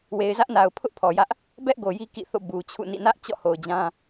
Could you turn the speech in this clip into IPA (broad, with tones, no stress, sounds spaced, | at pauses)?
w e˨ ɪ̯ z ä˦ ʔ n a˨ ʊ̯ pʰ ʊ˦ ʔ pʰ ɔ˨ j ä˦ ʔ | b ɛ˦ ʔ ɡ o˨ j i˦ k ḭ˦˨ θ o̰˦˨ b u˨ t͡ɕʰ ṵ˦˨ n ḭ˦˨ n ä˦ ʔ t͡ɕ ɔ̰˦˨ h o˨ ʊ̯ d͡ʑ ã˦